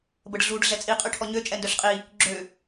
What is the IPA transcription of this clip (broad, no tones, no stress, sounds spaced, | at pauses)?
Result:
b ə ɖ ɮ u ɖ ɮ ɛ t͡sʼ i qʼ y ʈʰ ɔ ɲ ø t͡ʃʼ ɛ n d œ ɬ qʼ i | ɡ͡ǁ ø